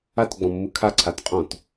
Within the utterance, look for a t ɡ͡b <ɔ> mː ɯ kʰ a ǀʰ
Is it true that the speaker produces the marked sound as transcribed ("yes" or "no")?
no